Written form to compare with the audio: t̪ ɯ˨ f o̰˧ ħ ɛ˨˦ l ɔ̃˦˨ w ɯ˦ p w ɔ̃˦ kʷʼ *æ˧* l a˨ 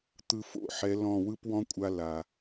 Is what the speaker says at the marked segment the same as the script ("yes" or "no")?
no